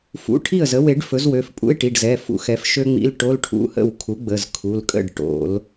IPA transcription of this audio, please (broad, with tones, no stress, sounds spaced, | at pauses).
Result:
f ṵ˩˧˩ ʈʰ i˥˩ ə̯ z ə˩˥ w e˨˩˦ ɖ f ɵ˩˥ z w ø˩˧˩ f pʼ ṵ˧˥˧ ɪ̯ ʈ i˩˧˩ ɖ z ɛ˩˧˩ f ṵ˩˥ x ɛ˩˥ f ʃ ø˥ ŋ͡m ḭ˧˥˧ l ʈ o˧˥˧ l ʈʰ ṵ˧˥˧ h ə̰˥˩ w kʰ u˩˥ ɡ͡b ə˩˧˩ z kʰ u˩˧˩ l kʼ ə̰˥˩ ɖ ʈ o̰˨˩˦ l